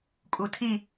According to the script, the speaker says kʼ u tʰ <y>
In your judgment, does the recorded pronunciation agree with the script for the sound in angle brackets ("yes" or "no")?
no